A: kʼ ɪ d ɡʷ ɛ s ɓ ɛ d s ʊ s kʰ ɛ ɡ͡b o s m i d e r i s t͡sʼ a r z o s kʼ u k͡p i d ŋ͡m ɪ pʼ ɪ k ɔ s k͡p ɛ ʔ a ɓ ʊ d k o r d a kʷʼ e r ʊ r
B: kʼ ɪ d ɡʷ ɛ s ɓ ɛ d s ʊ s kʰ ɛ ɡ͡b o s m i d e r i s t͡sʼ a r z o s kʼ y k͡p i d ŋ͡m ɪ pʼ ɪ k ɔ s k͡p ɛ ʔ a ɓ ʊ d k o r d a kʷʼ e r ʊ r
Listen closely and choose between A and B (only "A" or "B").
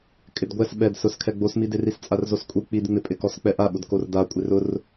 A